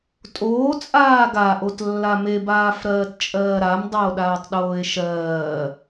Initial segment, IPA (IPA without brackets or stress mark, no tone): tʼ